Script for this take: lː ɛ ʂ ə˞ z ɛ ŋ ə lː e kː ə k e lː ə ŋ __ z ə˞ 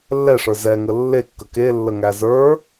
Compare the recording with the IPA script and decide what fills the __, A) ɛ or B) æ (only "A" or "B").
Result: B